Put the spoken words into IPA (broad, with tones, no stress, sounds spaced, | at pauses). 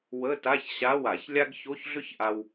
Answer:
w ə˧˥˧ t a˧˥˧ ç ɕ a˧˥˧ w a˧˩˧ ç lʲ a˥ ɡ ç o˧˥˧ ç ɮ ʏ˥ ç ʔ a˧ w